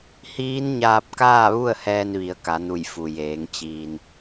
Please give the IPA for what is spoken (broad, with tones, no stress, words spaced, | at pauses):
hiː˧˥nɲaː˧p̚kaː˥˨ʋu˥˨ə̯ hɛː˧nʋi˩˧ə̯ ka˩˧nu˧˩j fu˩jeː˩˧ŋ t͡ɕiː˩n